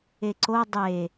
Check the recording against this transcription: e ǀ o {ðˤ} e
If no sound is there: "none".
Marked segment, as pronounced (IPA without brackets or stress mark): dˤ